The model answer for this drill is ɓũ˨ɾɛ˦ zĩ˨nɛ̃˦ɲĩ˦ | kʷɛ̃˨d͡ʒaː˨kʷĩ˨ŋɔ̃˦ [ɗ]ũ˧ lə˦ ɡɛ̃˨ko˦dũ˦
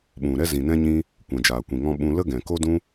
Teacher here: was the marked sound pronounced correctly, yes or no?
no